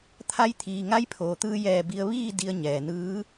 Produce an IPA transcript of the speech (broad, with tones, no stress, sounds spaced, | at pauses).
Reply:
t̪ʰ a˧˥ j t̪ʰ iː˩ ŋ a˧˥ j pʰ oː˩ t̪ ɯː˧ j ɛː˧˩ b i˧ ə̯ ʋ iː˥˨ d i˧ ə̯ ɲ ɛː˩ n ɯː˧˥